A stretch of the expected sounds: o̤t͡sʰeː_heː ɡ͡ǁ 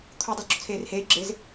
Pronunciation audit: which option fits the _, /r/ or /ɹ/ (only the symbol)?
r